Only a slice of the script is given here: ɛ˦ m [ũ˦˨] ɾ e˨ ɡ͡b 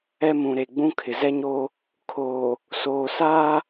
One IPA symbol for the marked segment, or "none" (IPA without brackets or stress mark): ũ˨